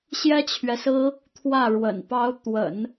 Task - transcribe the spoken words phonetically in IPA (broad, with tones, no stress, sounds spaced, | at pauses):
ɕ j ɛ˥ t͡ɕʰ ɥ ɛ˨ s ɹ̩˥ | t̪ʰ w ä˥˩ ɻ w ə̰˨˩ n p ɑ˧˥ ʊ̯ t̪ w ə̰˨˩˦ n